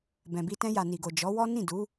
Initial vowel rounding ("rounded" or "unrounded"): unrounded